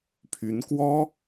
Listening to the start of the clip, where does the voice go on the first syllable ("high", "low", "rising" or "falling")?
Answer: rising